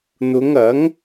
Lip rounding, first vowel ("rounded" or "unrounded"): rounded